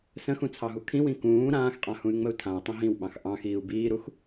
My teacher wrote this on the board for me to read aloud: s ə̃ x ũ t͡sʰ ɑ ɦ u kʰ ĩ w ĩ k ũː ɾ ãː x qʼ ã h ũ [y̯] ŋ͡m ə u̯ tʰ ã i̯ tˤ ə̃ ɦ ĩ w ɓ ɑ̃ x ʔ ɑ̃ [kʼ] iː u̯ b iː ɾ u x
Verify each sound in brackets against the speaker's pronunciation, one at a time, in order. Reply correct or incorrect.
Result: correct, incorrect: x

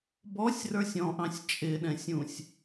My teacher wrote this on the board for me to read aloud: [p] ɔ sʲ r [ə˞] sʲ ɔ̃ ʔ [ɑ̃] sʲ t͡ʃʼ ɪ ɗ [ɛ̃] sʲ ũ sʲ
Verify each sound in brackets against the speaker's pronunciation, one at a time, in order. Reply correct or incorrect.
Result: incorrect: b, correct, correct, correct

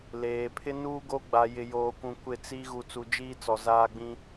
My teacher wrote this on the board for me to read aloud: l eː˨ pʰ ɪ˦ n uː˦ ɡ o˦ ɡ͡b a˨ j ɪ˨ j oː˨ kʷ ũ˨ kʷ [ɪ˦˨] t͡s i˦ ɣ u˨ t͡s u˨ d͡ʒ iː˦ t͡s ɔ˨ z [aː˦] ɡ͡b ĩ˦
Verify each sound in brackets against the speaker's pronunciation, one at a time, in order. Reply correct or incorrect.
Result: correct, correct

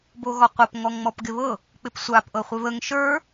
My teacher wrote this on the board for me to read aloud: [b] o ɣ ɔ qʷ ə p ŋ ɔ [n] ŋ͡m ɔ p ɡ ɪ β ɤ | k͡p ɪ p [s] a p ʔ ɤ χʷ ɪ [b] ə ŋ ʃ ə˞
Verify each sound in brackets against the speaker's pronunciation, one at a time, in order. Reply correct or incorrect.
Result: correct, incorrect: ŋ, incorrect: sʷ, incorrect: β

